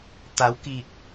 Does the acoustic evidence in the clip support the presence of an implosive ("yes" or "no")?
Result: no